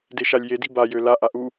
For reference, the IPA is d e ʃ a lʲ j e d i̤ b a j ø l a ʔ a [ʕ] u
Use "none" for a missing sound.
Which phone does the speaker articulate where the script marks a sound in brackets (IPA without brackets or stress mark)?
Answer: ʔ